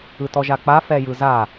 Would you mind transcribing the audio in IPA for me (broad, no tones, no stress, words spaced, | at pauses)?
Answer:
ɯtɔʒak͡pa fɛjɯza